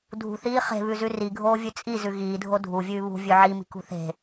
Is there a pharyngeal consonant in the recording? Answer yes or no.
yes